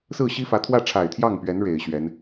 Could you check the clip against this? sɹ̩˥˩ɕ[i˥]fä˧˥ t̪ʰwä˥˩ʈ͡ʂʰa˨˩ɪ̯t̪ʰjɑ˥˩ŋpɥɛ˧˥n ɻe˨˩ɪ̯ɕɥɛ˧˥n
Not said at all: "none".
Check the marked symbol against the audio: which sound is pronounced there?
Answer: i˥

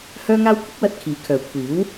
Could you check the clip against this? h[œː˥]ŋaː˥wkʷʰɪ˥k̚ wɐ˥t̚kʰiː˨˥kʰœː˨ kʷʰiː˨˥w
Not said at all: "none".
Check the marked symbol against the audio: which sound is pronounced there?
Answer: œː˥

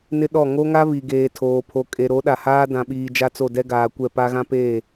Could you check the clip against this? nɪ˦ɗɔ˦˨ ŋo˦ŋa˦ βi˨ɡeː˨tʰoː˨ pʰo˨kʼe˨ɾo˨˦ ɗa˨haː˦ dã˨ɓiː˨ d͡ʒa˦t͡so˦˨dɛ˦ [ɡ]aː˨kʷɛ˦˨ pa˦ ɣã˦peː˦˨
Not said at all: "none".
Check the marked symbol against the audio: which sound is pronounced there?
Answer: ɡ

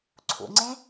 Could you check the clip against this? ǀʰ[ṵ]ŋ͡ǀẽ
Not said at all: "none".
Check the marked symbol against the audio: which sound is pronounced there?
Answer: ṵ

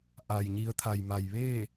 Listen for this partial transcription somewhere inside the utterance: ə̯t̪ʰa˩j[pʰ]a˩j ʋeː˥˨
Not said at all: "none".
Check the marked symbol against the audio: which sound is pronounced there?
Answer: m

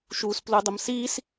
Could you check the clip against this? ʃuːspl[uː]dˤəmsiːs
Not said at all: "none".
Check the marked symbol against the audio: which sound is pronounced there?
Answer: u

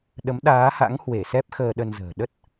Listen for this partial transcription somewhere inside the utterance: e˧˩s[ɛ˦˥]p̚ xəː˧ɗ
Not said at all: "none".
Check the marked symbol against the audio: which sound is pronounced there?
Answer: ɛ˦˥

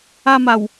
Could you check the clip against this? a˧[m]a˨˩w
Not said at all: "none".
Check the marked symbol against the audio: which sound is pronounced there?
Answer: m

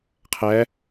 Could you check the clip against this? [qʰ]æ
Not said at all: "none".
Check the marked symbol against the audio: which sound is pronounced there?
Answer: qʰ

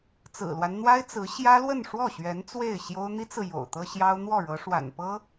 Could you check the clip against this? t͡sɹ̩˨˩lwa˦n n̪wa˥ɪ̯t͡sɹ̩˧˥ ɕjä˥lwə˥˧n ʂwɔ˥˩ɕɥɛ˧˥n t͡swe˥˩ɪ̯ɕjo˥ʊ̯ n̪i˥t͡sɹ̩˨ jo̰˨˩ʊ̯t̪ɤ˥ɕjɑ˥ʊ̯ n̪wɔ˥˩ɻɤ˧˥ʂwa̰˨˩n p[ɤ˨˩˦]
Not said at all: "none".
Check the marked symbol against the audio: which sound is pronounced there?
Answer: ɤ˥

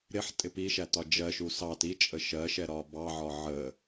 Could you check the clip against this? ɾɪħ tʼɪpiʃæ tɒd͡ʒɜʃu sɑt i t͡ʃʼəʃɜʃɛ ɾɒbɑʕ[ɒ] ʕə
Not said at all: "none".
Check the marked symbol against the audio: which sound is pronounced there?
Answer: ɒ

